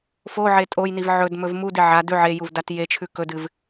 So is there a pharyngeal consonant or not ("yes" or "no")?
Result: yes